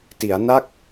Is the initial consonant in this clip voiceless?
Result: yes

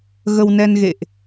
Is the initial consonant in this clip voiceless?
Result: no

